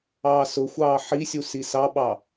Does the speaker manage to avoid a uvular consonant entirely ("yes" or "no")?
yes